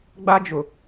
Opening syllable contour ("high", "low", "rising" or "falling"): high